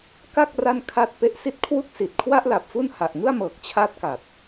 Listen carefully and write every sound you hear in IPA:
ka˥˩k̚ ra˥˩nkʰa˥˩t̚ pe˦˥ʔsi˦˥t̚kʰwu˥˩k̚ si˨˩t̚ kʰwa˥˩ʔla˨˩p̚fu˥˩n ha˨˩ʔŋɯ˥˩a̯mɤː˨˩k̚ t͡ɕʰa˥˩t̚ka˨˩t̚

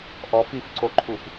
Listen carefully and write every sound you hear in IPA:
ʔɔfifǀoǃʰuf

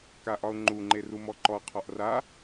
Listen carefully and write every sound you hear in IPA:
kaʔɒʊ̯ŋ͡ǃuŋ͡ǃe rumɔǃɔ qʰɒʔra

